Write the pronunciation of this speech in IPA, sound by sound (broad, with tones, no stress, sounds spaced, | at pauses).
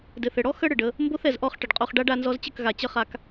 d ɘ˨ θ ɘ˨ ɽ ɔ˦ x ə˦ ɽ ɘ˨ ɖ ə˧ | m b o˦ θ ɛ˨ z ʔ ɔ˦˨ χ ʈ ə˨ ɖ qʼ o˧ χ ɖ a˦ ɖ a˧ n z ɔ˧ z t͡ɕ ə˦˨ k ɣ a˨ t͡ɕ ə˦ χ a˧ k